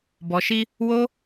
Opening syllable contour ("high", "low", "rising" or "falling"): low